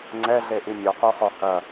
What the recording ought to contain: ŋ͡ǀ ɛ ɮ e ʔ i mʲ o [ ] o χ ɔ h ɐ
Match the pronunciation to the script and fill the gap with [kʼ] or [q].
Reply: q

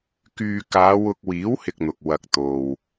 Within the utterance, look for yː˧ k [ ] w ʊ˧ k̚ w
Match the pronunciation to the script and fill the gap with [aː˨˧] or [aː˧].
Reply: aː˨˧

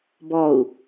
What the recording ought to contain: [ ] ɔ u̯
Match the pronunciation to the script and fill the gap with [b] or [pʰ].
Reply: b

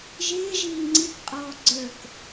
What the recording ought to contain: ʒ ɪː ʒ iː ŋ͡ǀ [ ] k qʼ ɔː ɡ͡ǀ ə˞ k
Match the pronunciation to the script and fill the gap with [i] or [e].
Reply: i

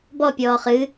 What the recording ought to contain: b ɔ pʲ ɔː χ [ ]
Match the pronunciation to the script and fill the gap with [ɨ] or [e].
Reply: ɨ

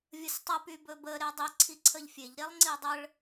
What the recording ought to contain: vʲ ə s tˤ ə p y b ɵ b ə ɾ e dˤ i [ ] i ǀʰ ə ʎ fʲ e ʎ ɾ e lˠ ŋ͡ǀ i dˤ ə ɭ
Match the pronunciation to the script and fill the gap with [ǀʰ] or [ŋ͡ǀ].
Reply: ǀʰ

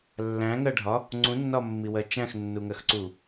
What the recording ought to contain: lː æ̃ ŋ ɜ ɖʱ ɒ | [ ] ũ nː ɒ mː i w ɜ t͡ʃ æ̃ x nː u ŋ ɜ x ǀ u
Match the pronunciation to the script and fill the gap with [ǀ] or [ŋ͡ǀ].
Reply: ŋ͡ǀ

